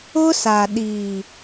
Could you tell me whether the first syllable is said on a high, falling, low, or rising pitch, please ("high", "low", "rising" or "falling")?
high